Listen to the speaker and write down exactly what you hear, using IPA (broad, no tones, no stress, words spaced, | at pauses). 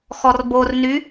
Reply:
xɔrborny